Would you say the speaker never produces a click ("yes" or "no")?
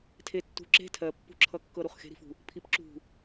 no